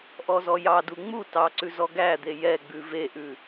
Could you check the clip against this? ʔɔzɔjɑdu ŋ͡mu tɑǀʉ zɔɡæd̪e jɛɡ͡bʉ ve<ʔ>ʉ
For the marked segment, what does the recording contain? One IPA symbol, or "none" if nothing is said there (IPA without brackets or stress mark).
ʔ